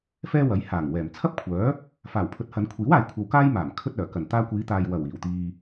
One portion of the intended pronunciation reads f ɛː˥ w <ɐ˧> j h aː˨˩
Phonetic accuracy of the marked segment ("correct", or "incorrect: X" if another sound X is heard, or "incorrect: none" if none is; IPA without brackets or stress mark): incorrect: ɐ˨˥